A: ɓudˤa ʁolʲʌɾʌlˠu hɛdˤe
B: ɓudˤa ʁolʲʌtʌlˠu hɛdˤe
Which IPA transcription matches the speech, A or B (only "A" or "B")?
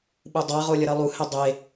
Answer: A